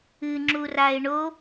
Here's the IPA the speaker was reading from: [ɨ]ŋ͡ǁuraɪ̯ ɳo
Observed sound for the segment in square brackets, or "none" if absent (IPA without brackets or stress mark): ɨ